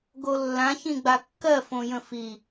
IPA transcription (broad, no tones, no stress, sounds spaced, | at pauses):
ɡ o lː ã ç ĩ ɡ͡b a kː ɜ f õ j ə̃ f i